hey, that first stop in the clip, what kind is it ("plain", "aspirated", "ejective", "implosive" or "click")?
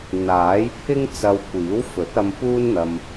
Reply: aspirated